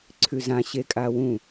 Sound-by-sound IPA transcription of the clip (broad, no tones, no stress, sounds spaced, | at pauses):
ǀʰ ʉ z ã ɕ e kʼ a w ũ